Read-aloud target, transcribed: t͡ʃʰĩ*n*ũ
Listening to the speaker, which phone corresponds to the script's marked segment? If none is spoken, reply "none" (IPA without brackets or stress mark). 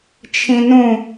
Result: n